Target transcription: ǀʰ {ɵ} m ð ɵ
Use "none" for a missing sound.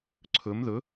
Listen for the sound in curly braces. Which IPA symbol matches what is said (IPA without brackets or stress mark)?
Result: ɵ